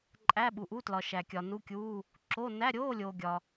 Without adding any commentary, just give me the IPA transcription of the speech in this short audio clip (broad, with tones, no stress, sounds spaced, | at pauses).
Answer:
ǃʼ æ˧˥˧ ɓ u˨ ʔ u˧˥˧ t l ɒ˨ ʃ æ˨ kʲ ɒ˨ n u˧˥˧ kʲ uː˧˥˧ | ǁ o˧˥˧ n æ˧˥˧ ɾʲ oː˧˥˧ lʲ oː˨ ɡʲ ɒ˨